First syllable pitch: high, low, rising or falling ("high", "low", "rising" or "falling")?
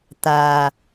low